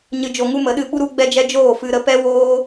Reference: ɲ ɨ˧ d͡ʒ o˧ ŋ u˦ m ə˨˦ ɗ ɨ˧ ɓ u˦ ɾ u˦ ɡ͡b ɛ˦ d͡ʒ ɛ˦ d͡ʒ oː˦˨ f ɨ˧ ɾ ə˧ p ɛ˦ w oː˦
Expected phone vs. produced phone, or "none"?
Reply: none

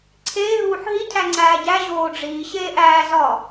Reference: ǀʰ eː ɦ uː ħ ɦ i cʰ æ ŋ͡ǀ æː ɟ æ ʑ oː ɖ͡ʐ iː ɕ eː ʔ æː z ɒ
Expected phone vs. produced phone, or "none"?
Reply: none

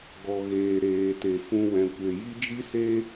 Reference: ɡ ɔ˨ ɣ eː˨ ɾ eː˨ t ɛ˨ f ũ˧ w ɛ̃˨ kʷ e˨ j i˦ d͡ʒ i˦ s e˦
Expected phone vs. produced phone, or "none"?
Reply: ɛ˨ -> e˨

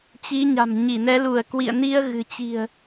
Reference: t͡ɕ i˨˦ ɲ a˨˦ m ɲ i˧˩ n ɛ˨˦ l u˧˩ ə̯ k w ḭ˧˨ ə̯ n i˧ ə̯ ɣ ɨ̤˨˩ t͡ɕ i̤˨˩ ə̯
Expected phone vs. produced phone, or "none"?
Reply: a˨˦ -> a̤˨˩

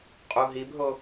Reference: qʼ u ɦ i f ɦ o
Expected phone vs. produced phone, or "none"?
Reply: f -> b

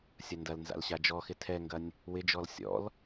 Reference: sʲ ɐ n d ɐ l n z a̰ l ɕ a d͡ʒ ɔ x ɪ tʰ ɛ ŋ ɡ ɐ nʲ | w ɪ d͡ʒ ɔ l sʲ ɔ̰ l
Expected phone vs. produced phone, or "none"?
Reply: none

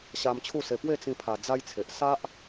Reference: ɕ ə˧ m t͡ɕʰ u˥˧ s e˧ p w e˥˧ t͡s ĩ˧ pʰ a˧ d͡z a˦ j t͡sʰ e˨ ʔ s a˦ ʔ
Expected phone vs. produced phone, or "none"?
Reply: ə˧ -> a˧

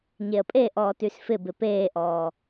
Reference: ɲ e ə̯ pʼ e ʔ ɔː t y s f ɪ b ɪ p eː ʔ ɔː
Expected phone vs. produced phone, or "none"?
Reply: none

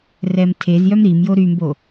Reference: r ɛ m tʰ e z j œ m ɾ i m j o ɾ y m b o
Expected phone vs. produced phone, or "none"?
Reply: none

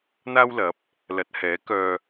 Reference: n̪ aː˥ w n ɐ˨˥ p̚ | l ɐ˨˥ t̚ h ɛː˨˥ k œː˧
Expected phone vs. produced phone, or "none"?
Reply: n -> l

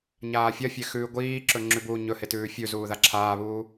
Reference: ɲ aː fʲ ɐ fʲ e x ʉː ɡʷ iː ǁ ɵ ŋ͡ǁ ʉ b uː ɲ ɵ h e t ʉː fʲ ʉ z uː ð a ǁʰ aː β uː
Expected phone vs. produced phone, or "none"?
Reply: none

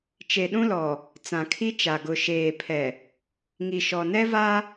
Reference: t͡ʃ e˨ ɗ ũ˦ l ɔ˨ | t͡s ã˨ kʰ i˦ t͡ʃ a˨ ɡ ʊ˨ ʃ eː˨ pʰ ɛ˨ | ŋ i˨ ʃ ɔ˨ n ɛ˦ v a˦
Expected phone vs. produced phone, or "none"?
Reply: none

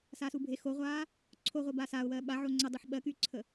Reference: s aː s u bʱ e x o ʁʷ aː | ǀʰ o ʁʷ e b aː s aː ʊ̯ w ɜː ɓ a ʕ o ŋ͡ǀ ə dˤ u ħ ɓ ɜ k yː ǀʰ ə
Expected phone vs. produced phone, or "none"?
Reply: none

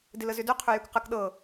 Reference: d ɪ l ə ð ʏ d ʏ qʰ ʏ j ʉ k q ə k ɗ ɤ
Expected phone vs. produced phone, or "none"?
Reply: ð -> z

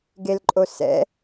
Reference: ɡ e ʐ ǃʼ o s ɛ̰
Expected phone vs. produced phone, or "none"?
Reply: ʐ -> l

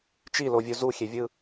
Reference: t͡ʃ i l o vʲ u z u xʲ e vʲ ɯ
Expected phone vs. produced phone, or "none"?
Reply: none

